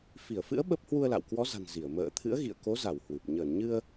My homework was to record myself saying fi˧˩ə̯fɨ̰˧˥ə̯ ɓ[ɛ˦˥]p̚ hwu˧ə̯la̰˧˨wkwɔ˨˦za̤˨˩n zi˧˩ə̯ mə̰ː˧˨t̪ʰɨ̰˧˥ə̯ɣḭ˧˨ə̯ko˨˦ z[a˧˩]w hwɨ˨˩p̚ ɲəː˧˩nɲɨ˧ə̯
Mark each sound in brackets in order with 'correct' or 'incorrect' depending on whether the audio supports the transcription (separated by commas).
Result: incorrect, correct